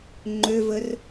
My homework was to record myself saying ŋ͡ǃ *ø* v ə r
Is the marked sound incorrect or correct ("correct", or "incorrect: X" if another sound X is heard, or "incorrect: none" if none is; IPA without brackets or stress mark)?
correct